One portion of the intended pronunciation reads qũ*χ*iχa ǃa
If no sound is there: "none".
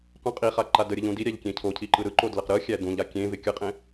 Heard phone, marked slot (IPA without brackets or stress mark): qʼ